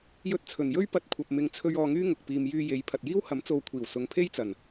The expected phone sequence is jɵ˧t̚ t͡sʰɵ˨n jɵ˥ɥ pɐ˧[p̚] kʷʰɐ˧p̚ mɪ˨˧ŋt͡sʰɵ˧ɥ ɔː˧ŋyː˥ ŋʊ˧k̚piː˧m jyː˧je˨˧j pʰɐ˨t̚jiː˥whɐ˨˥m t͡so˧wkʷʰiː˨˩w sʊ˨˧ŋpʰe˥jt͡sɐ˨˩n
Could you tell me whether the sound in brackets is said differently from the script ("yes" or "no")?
yes